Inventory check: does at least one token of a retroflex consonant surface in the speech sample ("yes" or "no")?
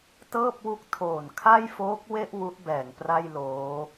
no